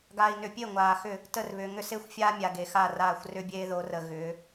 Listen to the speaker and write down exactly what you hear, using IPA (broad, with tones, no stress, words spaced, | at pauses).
ɡaː˨i̯nʏ˨pʲe˦˨ ŋʷaː˨xʏ˦˨ | tə˦˨rβʏː˨ ŋʏ˦se˦xʷfʲaː˦ mʲa˨ɡe˨xa˦˨raː˦˨xʷ rʏ˦bʲeː˦ðo˨˦rə˨ ɣʏː˨˦